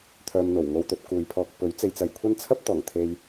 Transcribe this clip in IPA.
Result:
t̪ʰ œː˧ m n̪ o˨˩ w ŋ o˧ w t̪ ɵ˧ t̚ k uː˨ j pʰ ɔː˧ k̚ p ɵ˨˥ ɥ t͡s e˨˧ j t͡s ɐ˨ j kʷʰ ɐ˥ n t͡sʰ ɐ˥ p̚ t̪ ɔː˨˩ ŋ t̪ʰ e˧ j

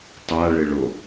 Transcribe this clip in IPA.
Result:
tˤ a ɭ ɪ ɭ o

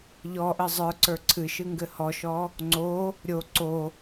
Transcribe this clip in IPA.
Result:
ʎ ɔ ʔ ɘ zˤ ə˞ ǀ ə˞ ǀʰ ɨ ʃ ɨ ŋ ɡ ɘ h ɔ ʃ ɔ | ŋ͡ǀ o | ɾʲ o ǀ o

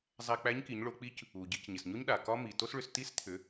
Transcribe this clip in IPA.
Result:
zˤ æ˧ k͡p æ˧˥ ɲ k i˩˧ ɲ ɭ o˩˧ k͡p i˧˥ c | u˩ ɟ i˩˧ c ɲ ɪ˩ s ɲ o˥ ɲ ɗ a˩ k ɒ˥ m i˩ t o˥ s ɭ ʏ˧ s t i˧˥ s t̪ʰ ʏ˩˧

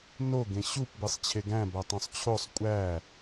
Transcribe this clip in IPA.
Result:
n o ɡ ẽ ɕ u p b e sˤ t͡ɕʰ e ɡ æ̃ b æ tˤ õ sˤ t͡ɕʰ o sˤ kʷʼ æ

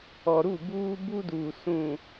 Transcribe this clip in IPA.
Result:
ɔ˨ ɾ u˦˨ b uː˦ b u˦ d uː˨ s ũ˨

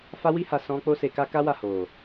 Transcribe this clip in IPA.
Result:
f a˦ w i˦ h a˧ s ɔ̃˧ k͡p o˦ s e˧ k a˦ k a˦ w a˦˨ h o˨

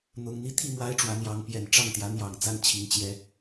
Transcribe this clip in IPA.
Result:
n̪ ʊ˧˥ ŋ n̪ i˧˥ t̪ʰ i˥˩ m w a˥ ɪ̯ ʈ͡ʂ w ä˧˥ n̪ j ɑ˧˥ ŋ p j ɛ˨˩ n ʈ͡ʂ ɑ˥˩ ŋ t̪ j ä˧˥ n̪ j ɑ˨˩ ŋ t͡s a˥˩ n t͡ɕʰ i˧˥ ŋ t͡ɕ j ɛ˥

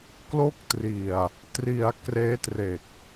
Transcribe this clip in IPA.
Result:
k l o˦˥ k̚ t r i˨˩ a̯ | t r i˩˦ a̯ k r eː˦˥ t r e˨˩ k̚

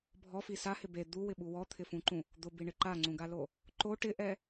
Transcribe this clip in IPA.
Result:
bʱ ɔ f i s a h ɪ b e d̪ u w ɪ ɓ u w ɔ t̪ʰ ɪ f ũ ǃ ũ | d̪ ʊ b i ɳ ɪ ǃ a ŋ͡ǀ ũ ɡ a l o | ǃ o ʈ ɪ ʔ ɛ

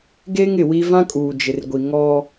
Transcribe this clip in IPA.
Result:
ɡ eː˦ ŋ ɪ˨ w i˦ v ã˦ kʼ uː˨ d͡ʒ ɪ˨ r ɡʷ i˨ ŋ ɔ˦

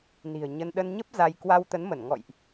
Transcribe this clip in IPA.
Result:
n i̤˨˩ ə̯ ɲ ə˧ n ɗ ə˧ n ɲ ə˦˥ p̚ z a˧ j k w a˧ w t̪ ə˨˦ n m ə˧˩ n ŋ ɔ̰˧˨ j ʔ

